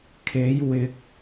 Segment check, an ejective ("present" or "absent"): absent